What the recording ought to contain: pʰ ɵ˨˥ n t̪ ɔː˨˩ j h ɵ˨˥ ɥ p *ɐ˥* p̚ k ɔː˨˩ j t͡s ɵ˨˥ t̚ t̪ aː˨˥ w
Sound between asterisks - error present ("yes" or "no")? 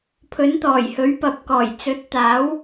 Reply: yes